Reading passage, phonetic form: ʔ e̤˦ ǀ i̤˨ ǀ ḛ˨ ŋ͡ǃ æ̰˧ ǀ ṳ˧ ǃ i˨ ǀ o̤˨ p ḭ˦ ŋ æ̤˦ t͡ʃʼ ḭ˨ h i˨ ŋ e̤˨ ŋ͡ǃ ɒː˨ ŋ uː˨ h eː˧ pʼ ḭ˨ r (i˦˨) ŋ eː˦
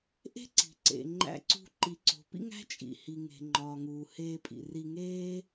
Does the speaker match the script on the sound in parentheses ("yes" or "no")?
no